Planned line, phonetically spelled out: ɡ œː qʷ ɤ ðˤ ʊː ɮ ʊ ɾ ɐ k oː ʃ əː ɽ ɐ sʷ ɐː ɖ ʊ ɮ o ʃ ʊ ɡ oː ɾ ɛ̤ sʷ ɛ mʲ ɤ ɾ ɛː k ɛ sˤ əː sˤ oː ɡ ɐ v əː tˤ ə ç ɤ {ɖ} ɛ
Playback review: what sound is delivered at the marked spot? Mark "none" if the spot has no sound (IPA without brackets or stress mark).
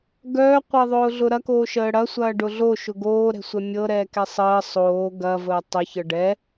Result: ɖ